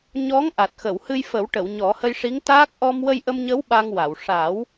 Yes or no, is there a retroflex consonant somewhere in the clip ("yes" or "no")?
yes